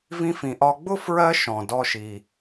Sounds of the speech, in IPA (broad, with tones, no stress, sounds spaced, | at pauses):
v ĩ˧ f ĩ˩ ʔ ɒ˧ ɡ͡b ʊ˥ f ɹ ɜ˥ ʃ ɔ̃˩ d ɔ˧ ʃ i˩